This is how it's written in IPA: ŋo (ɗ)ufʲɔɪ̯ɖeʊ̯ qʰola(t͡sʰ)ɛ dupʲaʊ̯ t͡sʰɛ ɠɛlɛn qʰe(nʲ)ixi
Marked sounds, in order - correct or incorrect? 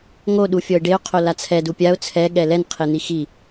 correct, correct, incorrect

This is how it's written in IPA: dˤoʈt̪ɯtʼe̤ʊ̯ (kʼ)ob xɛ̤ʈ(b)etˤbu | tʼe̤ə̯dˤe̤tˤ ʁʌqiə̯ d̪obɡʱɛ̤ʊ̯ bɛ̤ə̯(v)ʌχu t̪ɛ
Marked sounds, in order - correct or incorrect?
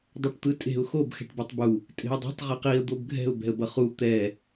incorrect, correct, incorrect

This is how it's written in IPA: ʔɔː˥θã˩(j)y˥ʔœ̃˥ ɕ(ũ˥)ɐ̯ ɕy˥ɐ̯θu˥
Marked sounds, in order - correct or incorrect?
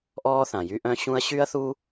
correct, correct

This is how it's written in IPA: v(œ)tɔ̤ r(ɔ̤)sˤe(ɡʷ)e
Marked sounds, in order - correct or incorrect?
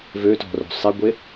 incorrect, incorrect, correct

